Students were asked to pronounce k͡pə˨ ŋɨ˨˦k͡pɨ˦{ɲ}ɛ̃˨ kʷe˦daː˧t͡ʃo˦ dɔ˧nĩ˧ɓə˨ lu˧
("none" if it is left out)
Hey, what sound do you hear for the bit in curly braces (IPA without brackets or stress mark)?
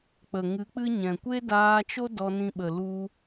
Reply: ɲ